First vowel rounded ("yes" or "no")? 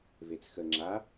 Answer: no